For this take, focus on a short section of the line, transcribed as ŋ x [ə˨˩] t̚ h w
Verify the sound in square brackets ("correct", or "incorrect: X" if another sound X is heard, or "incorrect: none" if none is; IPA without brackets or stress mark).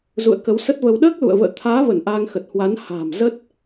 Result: correct